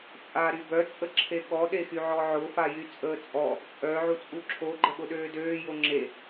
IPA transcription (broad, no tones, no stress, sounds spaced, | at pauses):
t͡sʼ a ɾ y b œ t͡sʼ ə ǁʰ e ɠ ɔ ɗ e x y ʕ ɔ ʕ ʊ f a j y t͡sʼ əː t͡sʼ ɔ | t͡sʼ œ ʕ u t͡sʼ u ǁʰ o ɡ͡ǃ ə ɠ ʊ ɗ øː d øː j o ŋ͡ǁ e